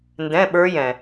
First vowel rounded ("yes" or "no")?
no